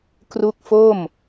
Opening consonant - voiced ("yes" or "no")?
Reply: no